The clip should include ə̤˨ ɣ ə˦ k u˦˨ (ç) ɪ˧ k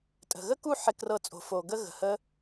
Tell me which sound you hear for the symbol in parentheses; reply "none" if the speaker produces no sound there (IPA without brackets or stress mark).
ħ